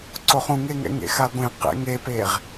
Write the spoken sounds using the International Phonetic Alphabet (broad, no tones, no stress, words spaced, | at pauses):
ǀoχũŋeŋɛ̰ ŋḛxaɡʷẽ qḛŋepeʁ